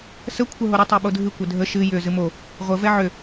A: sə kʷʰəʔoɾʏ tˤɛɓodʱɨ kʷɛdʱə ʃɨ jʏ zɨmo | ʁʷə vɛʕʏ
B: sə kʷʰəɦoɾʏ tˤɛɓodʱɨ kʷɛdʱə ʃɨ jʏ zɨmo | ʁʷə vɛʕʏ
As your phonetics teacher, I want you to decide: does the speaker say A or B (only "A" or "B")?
B